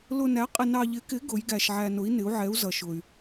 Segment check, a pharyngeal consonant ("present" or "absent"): present